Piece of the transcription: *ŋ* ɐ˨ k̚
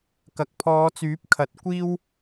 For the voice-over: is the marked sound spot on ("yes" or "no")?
no